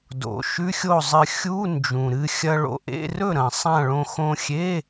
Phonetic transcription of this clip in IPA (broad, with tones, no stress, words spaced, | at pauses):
do̰˨˩ʃʉ˧˥˧xʲo˥˩zˤɨ˧ xʲu˧˥˧ nd͡ʒũ˨˩ɾɨ˧ xʲɐ˧ɭo̰˧ʔḛ˧˥˧rɵ˥˩ ɾɐ̃˨˩ sˤã˥˩ɭõ˧ xõ˧xʲe˧˥˧